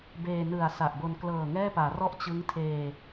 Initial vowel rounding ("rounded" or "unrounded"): unrounded